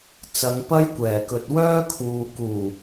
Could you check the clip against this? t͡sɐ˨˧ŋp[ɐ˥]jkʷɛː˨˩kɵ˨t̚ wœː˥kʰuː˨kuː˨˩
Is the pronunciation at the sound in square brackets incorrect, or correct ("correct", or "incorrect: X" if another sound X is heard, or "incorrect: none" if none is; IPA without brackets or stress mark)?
correct